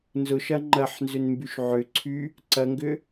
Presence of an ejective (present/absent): absent